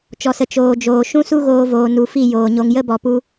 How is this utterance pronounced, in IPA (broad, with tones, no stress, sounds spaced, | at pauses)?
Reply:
t͡ʃ ɔ˨ s ə˨ t͡ʃ oː˨ d͡ʒ oː˨ ʃ ũ˦ s u˦ ɣ oː˧ v oː˨ n u˨ f i˦˨ j oː˨ ɲ o˧ ŋ j ə˦ b ɔ˨ p u˧